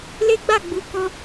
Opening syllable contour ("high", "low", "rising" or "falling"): high